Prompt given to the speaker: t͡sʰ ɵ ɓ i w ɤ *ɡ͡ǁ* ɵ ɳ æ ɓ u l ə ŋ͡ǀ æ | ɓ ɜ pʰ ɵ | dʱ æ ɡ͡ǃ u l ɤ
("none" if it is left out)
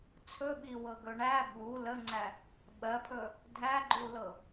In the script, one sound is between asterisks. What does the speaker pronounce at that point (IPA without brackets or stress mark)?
ɡ